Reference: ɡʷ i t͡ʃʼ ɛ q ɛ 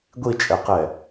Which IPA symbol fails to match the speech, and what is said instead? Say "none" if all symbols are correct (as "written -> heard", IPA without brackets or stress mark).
none